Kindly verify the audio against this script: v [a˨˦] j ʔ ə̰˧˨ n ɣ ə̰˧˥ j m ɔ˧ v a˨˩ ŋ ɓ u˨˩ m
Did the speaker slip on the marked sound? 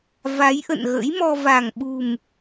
no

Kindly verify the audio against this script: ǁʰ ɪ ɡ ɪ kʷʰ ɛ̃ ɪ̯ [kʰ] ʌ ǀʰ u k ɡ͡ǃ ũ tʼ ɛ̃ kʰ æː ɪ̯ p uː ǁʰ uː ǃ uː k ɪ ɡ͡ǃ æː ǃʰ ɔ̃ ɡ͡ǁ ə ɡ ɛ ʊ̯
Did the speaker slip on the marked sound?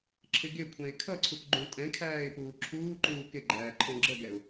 no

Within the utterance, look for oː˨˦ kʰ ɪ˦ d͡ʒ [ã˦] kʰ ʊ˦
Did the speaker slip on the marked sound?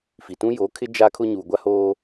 yes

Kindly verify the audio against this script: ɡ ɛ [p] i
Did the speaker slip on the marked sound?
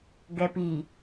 no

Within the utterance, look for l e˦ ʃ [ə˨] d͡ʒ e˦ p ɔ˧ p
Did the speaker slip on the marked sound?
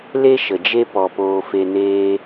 no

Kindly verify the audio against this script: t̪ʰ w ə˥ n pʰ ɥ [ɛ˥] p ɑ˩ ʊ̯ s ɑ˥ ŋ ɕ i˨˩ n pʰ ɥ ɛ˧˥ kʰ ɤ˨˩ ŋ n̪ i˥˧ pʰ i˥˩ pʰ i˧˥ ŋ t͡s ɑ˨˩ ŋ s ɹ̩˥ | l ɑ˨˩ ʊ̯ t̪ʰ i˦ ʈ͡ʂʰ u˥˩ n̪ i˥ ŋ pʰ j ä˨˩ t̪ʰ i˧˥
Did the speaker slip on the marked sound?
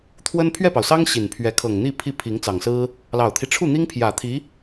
yes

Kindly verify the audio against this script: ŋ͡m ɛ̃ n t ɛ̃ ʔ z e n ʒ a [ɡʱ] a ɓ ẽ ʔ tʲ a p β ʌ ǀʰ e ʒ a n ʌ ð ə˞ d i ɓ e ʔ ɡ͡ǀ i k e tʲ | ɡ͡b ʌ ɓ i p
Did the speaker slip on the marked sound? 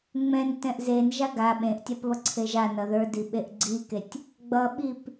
yes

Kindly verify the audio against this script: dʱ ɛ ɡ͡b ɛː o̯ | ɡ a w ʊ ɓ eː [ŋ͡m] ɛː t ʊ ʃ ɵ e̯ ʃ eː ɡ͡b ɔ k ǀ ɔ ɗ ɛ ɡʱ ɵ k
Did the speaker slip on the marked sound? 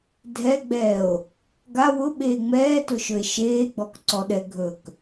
no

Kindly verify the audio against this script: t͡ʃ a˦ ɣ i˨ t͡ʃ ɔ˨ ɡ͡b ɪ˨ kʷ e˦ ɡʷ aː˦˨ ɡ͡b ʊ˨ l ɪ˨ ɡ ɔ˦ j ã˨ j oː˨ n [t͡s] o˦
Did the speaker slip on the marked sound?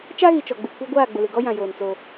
no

